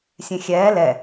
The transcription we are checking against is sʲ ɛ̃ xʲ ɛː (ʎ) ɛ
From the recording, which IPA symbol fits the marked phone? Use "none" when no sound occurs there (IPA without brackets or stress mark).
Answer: l